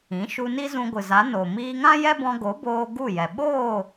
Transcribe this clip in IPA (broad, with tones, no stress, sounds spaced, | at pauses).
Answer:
ĩ˨˦ ʃ u˧ n i˦ z ũ˧ ɡʷ ɨ˨ z a˨˦ n o˨ m iː˧ ŋ ã˦ j ɛ˦ b ɔ̃˧ ɡ o˨˦ b oː˧ ɡ u˦˨ j ɛ˨ ɓ oː˦˨